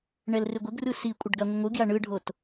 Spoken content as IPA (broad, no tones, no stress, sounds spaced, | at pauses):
ɳ ɛ l r ɪ ɡʷ ɪ ɡ r ɯ s i kʷʼ ə ɖ ɡ a ŋʷ ə ŋʷ ɯ ɡ j a ɳ ɯ ɖʱ o t